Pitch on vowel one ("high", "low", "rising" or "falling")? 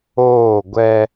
falling